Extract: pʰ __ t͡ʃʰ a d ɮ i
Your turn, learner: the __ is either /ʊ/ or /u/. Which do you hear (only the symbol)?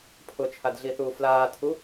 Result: ʊ